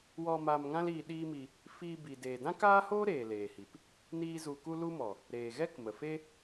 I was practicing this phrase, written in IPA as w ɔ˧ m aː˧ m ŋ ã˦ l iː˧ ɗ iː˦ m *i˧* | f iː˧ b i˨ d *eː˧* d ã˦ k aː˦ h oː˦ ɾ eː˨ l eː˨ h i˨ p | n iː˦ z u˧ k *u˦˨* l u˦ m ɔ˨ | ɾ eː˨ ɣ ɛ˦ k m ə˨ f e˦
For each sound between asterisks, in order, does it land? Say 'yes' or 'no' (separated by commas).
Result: yes, no, no